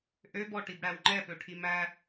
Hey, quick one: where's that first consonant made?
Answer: throat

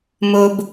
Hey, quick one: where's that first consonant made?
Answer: lips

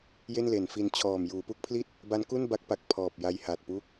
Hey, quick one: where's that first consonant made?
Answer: palate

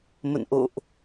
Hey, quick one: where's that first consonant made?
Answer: lips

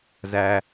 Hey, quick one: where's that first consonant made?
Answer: tongue tip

